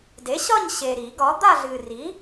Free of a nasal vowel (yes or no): yes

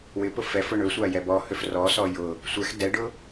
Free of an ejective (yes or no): yes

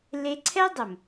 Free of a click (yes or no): no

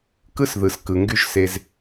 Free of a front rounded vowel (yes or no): no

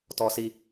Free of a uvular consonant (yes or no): yes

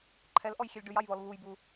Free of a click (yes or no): no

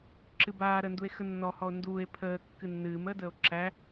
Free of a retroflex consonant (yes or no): yes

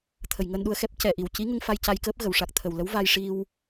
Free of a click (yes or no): yes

